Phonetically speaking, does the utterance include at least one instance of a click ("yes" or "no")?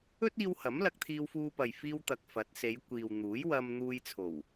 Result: no